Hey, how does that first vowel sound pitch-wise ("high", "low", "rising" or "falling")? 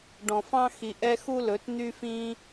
low